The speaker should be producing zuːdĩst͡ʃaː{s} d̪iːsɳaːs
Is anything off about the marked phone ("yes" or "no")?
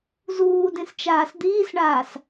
no